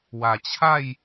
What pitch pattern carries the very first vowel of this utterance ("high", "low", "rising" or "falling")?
low